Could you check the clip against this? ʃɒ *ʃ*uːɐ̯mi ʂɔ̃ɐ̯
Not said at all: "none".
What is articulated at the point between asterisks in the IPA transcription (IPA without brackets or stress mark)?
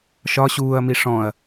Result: ɕ